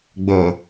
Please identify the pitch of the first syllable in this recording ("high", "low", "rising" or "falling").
low